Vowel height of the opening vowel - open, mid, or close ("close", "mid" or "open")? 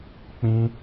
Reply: close